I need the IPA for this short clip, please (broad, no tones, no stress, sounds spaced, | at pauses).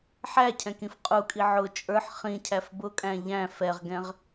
ħ æ cʰ ɛ̃ k ĩ f qʼ u kʼ i ʕ ʊ t͡ʃʼ ə˞ ħ χ ĩ cʰ æ f b ʊ kʼ æ̃ ʎ æ̃ f ɛ ʁ ɡ ɛ̃ ʁ